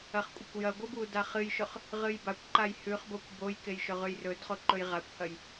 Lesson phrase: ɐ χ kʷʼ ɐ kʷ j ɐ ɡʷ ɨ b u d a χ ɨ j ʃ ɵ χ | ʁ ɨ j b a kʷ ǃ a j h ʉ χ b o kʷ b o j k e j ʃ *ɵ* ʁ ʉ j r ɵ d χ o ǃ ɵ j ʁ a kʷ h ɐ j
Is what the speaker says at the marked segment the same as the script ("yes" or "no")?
yes